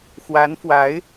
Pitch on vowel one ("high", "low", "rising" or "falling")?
rising